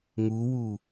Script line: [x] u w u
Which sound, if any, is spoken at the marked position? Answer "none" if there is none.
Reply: ŋ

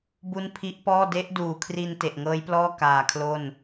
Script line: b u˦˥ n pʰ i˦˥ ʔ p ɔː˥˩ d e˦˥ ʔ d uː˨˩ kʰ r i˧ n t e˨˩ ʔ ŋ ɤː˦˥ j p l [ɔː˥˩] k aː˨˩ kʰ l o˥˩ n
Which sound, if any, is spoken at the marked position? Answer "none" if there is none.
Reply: ɔː˥˩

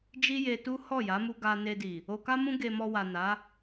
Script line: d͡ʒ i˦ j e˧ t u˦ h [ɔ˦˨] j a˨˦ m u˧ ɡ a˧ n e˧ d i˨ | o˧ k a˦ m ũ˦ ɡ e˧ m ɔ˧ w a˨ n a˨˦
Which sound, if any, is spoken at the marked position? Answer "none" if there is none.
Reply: ɔ˦˨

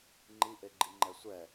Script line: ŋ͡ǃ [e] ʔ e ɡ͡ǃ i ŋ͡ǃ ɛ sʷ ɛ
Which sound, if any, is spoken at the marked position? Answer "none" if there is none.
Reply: i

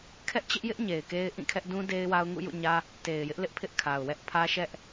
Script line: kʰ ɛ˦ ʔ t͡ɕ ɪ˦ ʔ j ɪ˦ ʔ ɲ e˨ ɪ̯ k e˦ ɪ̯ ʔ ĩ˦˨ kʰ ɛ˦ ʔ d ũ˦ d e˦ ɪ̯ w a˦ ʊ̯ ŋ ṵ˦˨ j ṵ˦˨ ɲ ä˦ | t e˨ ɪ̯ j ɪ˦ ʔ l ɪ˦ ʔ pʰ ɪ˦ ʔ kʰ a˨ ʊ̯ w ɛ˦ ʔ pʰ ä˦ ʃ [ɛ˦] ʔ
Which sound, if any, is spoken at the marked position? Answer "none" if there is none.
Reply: ɛ˦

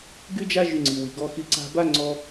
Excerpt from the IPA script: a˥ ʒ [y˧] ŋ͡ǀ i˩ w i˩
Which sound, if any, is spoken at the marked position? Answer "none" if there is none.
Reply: y˧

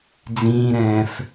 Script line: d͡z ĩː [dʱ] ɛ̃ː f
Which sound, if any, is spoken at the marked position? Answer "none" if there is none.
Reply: ɾ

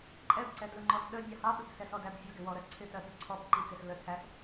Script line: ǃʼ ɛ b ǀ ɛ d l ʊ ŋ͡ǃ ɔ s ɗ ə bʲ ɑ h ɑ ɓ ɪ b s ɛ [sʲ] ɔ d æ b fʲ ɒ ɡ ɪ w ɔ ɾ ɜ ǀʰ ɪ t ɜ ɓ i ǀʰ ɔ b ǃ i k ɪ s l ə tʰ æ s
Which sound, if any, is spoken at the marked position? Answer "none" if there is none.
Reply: s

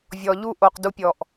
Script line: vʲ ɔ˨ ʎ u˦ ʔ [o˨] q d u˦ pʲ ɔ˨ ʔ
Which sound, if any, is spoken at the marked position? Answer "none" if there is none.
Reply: o˨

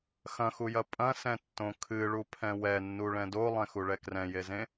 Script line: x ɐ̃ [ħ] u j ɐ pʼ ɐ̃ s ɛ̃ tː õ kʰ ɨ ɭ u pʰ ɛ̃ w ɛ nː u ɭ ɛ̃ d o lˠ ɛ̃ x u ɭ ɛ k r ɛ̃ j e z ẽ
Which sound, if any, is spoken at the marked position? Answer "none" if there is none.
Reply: x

